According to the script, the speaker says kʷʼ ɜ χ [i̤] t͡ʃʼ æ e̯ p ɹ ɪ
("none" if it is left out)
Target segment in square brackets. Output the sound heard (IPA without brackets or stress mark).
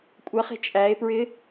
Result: i̤